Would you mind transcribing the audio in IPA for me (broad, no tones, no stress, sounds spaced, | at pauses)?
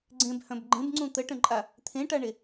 ɡ͡ǀ ẽ b h œ̃ b ɡ͡ǃ ẽ b ŋ͡ǀ ũ t̪ ə ʈ ə̃ ǃʼ a | t̪ʰ ẽ ʈ a ɳ e